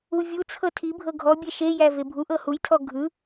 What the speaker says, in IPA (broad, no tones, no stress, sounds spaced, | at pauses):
u vʲ u t͡sʰ ɤ tʰ i bʱ ɤ ɡʱ ɔ bʲ ɛ ʃ e j æ v e bʱ u ʔ ɤ h u j tʰ ɔ ɡʱ ɯ